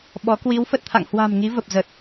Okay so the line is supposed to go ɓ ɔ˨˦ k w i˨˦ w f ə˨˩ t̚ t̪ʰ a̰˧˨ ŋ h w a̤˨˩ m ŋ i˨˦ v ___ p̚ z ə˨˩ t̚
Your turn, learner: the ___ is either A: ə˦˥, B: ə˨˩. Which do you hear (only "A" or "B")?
B